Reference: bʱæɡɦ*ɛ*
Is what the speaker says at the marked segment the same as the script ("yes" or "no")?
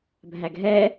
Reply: yes